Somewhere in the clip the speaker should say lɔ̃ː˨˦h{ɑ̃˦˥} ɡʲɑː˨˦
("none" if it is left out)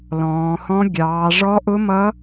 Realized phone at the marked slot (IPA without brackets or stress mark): ɔ̃˦˥